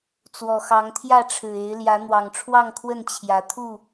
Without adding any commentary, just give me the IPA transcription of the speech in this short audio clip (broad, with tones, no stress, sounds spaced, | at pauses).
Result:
t͡s w ɔ˨˩ x ɑ˨˦ ŋ t̪ʰ j ä˥˨ ʈ͡ʂʰ ɻ̩˨˩ e˨˦ ɪ̯ l j ä˨˦ n̪ w ɑ˨˩ ŋ ʈ͡ʂʰ w ɑ˥˨ ŋ kʰ w ə˥˨ n t͡ɕʰ j ä˨˦ t̪ʰ u˥˨